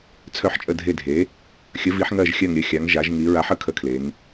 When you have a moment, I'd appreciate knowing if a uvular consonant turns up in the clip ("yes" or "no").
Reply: no